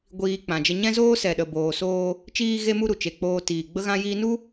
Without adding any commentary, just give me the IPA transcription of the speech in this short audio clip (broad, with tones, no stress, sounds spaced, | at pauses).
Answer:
ɡʷ iː˧ k͡p ã˨ d͡ʒ ə˧ ɲ ɛ̃˦ z oː˦ s ɛ˨ ɗ ə˨ b oː˨ s oː˧ | t͡ʃ iː˧ ɣ e˧ m u˧ ɾ u˨ t͡ʃ e˨ k͡p oː˧ t iː˨ ɡ͡b ə˦ ɣ ã˦ j iː˦ n u˦